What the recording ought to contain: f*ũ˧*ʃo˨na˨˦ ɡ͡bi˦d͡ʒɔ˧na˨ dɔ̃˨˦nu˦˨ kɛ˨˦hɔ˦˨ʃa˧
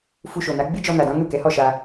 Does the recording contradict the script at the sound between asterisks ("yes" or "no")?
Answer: yes